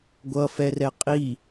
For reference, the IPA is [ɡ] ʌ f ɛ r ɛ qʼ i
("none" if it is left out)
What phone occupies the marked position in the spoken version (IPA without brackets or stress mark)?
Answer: ɡʷ